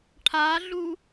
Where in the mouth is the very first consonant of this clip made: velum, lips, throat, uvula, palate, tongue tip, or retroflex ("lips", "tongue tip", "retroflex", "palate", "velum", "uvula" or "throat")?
retroflex